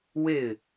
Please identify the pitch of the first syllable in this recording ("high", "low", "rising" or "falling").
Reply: falling